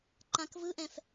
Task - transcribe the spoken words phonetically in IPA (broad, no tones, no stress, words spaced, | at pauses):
ǃãkvɯʔɛ̃f